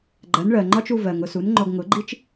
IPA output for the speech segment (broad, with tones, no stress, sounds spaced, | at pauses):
ɡ͡ǃ ɜ˩˥ n ɭ ɜ˩ ŋ͡ǃ ɒ˥ t͡ʃ u˧ v ɜ˩ ŋ ʊ˧ s u˩˥ n ŋ͡ǃ ɔ˧ ɡ ŋ ʊ˩˥ ɡ͡ǃ i˥ t͡ʃ